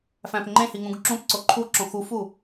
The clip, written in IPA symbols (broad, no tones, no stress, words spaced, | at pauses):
fæ̃pŋ͡ǃẽhi ŋũɡǁũpǀo ǃʰuǁõ xufu